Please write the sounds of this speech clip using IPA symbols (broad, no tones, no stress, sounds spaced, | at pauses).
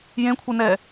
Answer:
j ẽ kʷʰ ɛ n ɛ